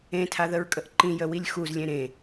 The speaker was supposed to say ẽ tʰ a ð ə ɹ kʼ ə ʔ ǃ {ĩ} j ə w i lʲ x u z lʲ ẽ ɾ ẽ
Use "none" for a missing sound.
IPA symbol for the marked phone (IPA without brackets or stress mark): ĩ